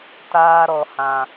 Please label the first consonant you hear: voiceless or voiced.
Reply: voiceless